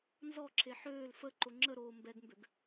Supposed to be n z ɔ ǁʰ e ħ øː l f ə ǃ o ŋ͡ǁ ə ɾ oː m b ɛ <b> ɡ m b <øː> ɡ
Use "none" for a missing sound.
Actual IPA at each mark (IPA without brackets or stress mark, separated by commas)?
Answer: none, ø